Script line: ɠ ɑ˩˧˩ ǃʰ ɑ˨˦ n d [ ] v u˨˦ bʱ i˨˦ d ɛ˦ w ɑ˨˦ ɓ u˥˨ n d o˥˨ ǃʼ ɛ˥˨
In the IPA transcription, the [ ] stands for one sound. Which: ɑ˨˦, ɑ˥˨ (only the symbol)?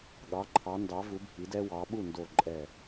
ɑ˨˦